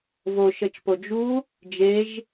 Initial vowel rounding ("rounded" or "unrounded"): rounded